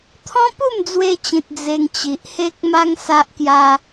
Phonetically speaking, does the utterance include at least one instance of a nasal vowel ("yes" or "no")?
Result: yes